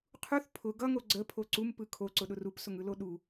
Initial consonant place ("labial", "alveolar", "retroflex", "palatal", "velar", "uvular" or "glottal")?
uvular